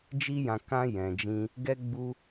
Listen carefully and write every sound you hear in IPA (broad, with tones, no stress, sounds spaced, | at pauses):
d͡ʒ i˦ j ã˧ k ã˦ j ɛ̃˧ d͡ʒ ĩ˦ | ɡ ɛ˦ ɡ͡b u˦